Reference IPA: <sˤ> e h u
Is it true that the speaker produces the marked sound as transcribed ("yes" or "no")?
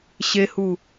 no